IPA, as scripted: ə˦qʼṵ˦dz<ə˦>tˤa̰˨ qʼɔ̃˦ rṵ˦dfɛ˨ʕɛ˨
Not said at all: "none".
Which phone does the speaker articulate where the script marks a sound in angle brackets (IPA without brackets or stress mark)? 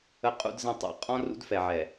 ə̃˦